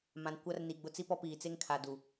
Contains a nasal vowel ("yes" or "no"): yes